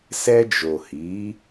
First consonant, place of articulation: alveolar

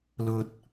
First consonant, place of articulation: alveolar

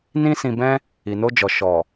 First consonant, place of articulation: alveolar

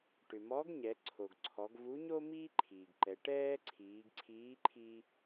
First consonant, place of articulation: retroflex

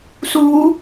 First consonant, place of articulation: alveolar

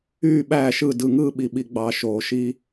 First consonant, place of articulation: labial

